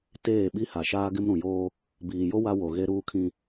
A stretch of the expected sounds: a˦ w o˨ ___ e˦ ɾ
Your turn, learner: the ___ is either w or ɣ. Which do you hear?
ɣ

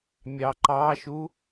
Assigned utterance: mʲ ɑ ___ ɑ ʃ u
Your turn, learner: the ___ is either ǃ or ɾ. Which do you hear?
ǃ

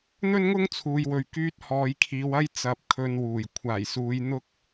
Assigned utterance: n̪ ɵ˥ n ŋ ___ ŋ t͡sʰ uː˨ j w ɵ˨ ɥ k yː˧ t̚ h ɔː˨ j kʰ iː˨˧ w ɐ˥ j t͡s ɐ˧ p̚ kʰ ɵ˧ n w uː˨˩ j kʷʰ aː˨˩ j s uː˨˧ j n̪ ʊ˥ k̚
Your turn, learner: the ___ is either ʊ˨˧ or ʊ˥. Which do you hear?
ʊ˥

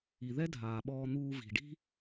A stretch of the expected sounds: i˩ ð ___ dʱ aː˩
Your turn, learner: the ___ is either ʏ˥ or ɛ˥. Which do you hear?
ɛ˥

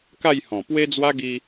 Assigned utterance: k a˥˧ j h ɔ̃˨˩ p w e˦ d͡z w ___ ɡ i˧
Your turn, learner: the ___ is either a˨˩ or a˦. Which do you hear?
a˦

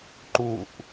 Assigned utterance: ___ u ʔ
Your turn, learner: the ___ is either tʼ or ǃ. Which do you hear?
ǃ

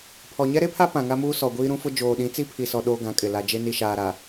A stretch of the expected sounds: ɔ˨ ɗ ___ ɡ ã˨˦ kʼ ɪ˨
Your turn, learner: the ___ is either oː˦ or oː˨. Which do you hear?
oː˦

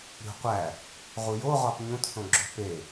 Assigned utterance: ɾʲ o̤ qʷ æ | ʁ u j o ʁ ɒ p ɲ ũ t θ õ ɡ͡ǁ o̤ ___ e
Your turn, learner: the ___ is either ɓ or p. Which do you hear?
p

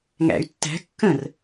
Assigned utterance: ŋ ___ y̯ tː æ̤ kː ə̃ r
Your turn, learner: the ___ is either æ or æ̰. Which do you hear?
æ̰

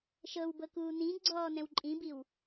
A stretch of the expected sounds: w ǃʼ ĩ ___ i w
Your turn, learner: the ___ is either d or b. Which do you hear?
b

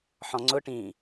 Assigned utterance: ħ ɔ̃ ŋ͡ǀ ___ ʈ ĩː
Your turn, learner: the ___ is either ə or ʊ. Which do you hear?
ʊ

